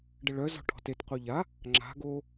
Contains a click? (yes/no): yes